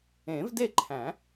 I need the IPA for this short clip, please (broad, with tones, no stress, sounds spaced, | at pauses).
ẽ˨˩˦ v d e˥˩ ǃʰ æ̃˨˩˦